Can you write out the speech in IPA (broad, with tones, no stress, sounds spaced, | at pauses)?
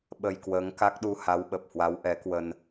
ɓ ə˧ j k w əː˨˦ ŋ k a˦˥ k̚ ɗ u˧ h a˨˦ w ɓ ə˨˩ p̚ h w a˨˦ w ʔ ɛ˨˦ k w ə˧ n